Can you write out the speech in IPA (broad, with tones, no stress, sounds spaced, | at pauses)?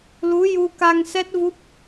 l u˧˥ j u˧ k a˧ ŋ s ɛ˦˥ t̚ v u˦˥ p̚